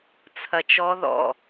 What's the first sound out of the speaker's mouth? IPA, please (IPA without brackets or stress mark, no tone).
t͡sʰ